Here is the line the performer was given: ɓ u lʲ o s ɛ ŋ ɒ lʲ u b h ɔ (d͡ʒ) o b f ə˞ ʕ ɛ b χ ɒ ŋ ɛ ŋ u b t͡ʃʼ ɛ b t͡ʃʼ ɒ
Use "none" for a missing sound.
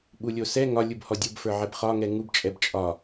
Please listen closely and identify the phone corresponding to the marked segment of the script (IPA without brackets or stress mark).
dʲ